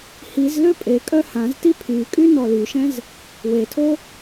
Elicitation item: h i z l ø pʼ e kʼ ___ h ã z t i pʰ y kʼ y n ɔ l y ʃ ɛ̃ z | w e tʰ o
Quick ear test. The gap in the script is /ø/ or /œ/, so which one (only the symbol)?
œ